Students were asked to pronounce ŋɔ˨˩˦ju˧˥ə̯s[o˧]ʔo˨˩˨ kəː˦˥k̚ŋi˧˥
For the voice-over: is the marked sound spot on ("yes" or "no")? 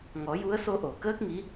yes